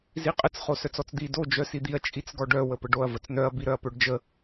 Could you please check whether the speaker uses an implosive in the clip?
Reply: no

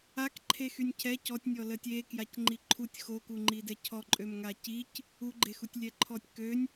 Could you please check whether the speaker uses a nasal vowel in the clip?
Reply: no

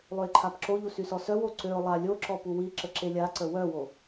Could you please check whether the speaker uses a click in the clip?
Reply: yes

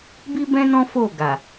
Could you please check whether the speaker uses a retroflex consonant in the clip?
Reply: no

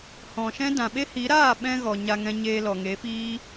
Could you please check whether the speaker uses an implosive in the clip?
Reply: yes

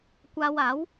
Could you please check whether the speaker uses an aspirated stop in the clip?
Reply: no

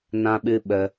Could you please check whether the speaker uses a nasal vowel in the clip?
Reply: yes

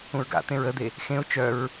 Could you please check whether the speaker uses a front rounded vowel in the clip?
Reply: yes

